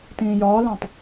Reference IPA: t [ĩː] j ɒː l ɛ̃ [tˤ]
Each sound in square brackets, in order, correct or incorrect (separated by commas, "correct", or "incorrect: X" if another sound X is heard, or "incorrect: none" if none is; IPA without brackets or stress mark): correct, correct